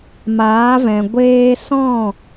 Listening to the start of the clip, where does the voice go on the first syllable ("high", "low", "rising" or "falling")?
rising